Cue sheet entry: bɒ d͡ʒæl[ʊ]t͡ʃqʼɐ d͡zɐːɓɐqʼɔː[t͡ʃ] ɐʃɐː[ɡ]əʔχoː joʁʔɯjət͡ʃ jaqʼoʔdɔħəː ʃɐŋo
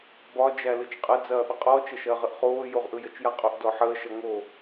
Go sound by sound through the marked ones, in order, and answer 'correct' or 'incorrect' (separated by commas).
incorrect, correct, incorrect